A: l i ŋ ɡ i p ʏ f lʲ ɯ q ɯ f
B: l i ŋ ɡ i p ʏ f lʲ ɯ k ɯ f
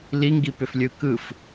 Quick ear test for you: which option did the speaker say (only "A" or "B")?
B